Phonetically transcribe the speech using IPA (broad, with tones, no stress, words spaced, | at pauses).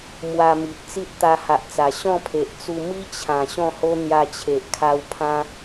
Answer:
mwa˧mi˨ʔ t͡si˦t̚t̪a˧ha˨ʔt͡sa˨˩ ɕɔ̃˥˧pʰe˨ʔt͡su˧ mi˦t͡ɕʰã˨˩ ɕɔ̃˥˧ho˦ n̪ja˧t͡ɕʰe˨ʔkʰa˧w pʰã˦